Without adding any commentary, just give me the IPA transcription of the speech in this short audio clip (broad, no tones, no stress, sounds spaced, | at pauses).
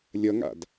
lʲ ʌ ŋ a̰ d